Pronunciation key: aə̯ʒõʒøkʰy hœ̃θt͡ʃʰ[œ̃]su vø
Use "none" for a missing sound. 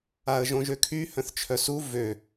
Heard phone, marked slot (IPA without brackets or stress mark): œ